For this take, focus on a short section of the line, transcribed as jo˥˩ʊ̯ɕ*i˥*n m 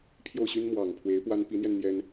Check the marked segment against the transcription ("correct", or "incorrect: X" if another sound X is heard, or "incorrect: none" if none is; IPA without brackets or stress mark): incorrect: y˥